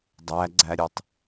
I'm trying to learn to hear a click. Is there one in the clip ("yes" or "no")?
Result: yes